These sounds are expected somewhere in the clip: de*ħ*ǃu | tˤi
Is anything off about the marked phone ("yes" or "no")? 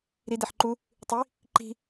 no